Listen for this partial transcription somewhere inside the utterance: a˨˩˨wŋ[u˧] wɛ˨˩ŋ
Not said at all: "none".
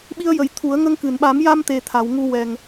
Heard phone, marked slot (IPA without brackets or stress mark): u˧